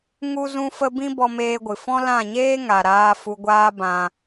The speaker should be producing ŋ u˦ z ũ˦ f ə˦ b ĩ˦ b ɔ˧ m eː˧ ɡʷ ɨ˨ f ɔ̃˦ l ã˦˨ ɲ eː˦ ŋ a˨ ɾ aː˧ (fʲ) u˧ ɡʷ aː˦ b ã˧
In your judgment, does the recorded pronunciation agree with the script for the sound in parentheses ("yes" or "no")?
no